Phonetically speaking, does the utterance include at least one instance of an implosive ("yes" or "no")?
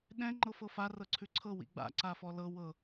yes